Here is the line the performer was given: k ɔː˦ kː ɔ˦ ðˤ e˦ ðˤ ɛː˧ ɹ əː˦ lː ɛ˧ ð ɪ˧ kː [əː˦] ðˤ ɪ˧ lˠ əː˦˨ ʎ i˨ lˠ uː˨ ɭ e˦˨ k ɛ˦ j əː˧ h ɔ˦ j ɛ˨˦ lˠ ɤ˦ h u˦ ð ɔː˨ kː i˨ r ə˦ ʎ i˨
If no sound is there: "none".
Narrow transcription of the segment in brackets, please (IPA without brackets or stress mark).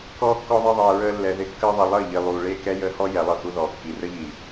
əː˦